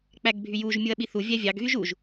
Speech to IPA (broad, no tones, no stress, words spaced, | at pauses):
k͡pæɡbʱyjuʒ mʲuɐ̯ɓiθu vʲævʲɑɡ ɣyʒuʒ